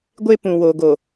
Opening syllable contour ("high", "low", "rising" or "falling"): high